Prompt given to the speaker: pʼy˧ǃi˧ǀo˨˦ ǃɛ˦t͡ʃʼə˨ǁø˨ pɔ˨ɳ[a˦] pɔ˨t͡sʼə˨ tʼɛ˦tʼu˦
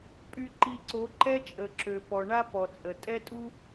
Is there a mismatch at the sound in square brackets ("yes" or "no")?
no